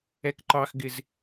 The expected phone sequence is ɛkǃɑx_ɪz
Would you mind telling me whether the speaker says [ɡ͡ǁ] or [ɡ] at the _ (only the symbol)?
ɡ